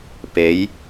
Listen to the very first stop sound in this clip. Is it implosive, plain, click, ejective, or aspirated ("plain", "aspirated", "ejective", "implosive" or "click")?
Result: plain